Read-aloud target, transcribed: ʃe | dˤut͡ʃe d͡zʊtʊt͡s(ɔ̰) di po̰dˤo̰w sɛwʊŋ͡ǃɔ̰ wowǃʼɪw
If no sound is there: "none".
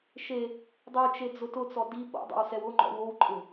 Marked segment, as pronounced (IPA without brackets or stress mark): ɔ